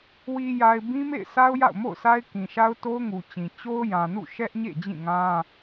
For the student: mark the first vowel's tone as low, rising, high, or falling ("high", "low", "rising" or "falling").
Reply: low